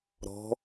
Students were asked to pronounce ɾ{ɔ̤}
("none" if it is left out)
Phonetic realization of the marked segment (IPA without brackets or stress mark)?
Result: ɔ̤